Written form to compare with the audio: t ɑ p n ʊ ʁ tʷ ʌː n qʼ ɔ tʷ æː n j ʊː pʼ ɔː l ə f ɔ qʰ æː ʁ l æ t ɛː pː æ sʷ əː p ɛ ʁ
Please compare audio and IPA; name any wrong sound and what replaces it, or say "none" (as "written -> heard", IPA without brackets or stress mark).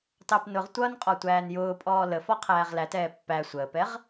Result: none